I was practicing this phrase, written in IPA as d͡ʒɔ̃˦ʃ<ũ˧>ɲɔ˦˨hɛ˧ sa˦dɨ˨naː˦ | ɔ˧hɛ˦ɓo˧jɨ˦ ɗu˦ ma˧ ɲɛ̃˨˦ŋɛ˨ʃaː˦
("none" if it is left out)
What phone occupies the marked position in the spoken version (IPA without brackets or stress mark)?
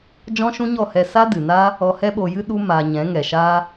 ũ˦